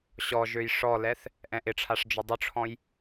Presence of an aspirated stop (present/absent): present